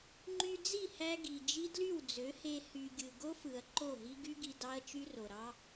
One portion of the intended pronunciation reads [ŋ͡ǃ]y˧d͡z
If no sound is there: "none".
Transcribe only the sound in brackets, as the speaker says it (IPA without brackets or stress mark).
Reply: ŋ͡ǃ